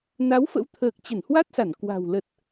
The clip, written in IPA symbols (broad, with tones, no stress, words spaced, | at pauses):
na˨˦wfə̰˧˥wt̪ʰəː˨˩k̚ t͡ɕə˧˩nhwa˦˥t̚sa˧˩n kwa̤˨˩w lə˨˩t̚